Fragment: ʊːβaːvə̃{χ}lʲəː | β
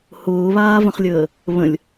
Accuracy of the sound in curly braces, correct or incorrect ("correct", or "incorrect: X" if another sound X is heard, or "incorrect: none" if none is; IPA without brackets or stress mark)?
correct